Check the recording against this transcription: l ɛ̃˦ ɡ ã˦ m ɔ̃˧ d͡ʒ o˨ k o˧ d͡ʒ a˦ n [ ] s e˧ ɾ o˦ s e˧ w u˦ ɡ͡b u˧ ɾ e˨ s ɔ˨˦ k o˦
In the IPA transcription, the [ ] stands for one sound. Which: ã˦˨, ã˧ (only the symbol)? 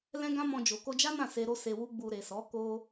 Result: ã˦˨